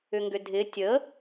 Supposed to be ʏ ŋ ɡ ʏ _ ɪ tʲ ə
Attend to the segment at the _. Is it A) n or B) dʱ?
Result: B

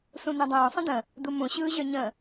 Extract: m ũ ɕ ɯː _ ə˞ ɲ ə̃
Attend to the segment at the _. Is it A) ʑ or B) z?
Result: A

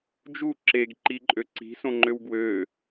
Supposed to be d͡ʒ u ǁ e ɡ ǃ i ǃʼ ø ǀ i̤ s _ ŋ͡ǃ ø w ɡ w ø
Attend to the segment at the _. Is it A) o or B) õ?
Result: B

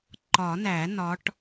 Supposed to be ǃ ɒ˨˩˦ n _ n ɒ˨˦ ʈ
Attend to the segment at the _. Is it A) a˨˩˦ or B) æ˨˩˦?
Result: B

